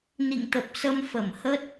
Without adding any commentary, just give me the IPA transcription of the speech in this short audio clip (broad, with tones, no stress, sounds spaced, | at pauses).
n ḭ˧˨ ŋ t̪ ə˨˩ p̚ s ə˧ m f ə˧˩ m h ə˦˥ t̚